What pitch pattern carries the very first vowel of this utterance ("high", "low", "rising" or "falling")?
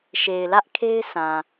low